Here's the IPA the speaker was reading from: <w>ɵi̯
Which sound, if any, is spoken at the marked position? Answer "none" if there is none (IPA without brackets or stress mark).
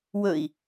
w